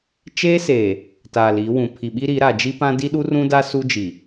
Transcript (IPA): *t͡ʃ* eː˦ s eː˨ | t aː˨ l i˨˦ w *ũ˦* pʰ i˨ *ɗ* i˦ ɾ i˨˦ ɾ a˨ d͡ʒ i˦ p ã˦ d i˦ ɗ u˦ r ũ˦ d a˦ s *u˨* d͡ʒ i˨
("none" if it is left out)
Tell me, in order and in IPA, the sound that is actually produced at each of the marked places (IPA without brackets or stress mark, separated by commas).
t͡ʃ, ũ˨, ɓ, u˦